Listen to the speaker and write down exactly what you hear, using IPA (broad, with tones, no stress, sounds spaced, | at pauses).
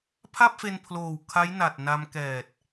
pʰ a˥˩ p̚ f e˧ n pʰ l oː˨˩ w kʰ a˦˥ j n a˨˩ t̚ n a˧ m k ɛː˨˩ t̚